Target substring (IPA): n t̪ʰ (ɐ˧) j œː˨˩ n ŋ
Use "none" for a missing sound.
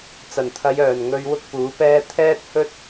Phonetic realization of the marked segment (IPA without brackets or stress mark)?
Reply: ɐ˨˧